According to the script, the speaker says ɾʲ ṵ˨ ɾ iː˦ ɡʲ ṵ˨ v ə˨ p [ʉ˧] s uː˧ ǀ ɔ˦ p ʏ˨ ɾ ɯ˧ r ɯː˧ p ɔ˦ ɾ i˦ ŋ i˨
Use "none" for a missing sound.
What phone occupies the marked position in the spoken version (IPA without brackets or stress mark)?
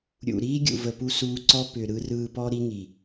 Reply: u˧